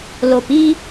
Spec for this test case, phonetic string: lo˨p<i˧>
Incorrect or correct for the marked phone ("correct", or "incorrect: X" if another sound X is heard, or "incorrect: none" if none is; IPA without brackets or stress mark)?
correct